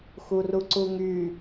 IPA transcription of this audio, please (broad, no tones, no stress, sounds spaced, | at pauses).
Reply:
x u r u ǀ u ŋ y